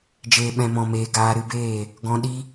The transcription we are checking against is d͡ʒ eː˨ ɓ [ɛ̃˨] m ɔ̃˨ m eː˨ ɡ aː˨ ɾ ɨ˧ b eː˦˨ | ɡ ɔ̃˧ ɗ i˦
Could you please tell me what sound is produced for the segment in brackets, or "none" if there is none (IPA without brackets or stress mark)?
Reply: ɛ̃˨